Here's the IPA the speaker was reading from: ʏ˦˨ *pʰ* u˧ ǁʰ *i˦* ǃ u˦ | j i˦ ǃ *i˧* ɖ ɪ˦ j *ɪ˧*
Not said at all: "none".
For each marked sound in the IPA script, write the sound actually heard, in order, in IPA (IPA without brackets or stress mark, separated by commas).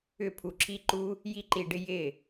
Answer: pʰ, i˦, i˧, ɪ˦˨